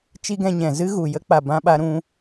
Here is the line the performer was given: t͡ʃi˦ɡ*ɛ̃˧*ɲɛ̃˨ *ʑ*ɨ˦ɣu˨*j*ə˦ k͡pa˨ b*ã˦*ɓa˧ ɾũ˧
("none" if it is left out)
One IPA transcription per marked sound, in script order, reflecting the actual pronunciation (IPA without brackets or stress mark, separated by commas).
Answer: ɛ̃˧, z, j, ã˧